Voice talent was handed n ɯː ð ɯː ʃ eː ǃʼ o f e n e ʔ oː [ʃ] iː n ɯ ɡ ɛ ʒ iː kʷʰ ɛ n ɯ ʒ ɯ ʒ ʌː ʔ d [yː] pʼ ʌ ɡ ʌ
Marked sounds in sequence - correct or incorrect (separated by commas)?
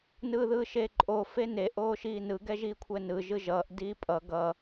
correct, incorrect